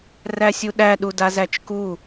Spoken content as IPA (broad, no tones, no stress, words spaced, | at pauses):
ræsʲuɗæ ɗudazæt͡ʃku